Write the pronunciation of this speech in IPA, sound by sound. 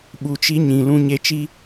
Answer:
ɓu˨ t͡ʃi˧ɲĩ˨ lũ˨ɲe˨t͡ʃi˧

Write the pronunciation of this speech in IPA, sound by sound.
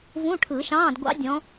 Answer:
vũ˧˥˧ʈʰɯ˨˩˦ʃɑ̃ː˧˥˧d ɡʷɑ̰˦˥dʲɔ̃˨˦

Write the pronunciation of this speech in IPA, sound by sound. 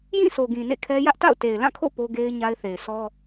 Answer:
jĩ˦˨so˨ɡĩ˨ nḛ˦˨kʰɛ˦ jä˦ʔta̰˦˨ʊ̯ te˨ɪ̯lã˦˨kʰo̰˦˨ po˦ ɡe˦ɪ̯ ɲa˦ɪ̯θe˨ɪ̯ sɔ˦

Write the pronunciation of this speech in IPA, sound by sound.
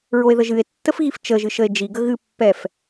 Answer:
ɹoe̯ðəʒɨe̯tːəf ɣift͡ʃəʒɨ ʃəe̯d͡ʒiɡə ɣɨpːɛf

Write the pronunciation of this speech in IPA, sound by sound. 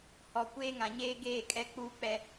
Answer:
hɔ˨kʷeː˦ŋã˨ ɲeː˦ɡeː˦˨ kʼɛ˦k͡puː˦k͡pɛ˦

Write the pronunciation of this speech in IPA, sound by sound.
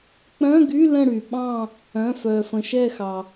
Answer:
k͡pœ̃˧˥˧ɡy˧˥˧ lə̃˦˨ ɽy˩ ɓɑ̃˦˨ | œ̃˩˧˩ fœ˩fə̃˩ ʃɛ˦˨xɑ˩

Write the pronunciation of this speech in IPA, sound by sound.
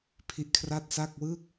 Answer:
pʰi˦˥ʔkʰra˥˩t̚sa˥˩k̚ wɯ˥˩k̚

